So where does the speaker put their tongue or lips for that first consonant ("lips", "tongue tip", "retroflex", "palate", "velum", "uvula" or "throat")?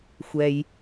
velum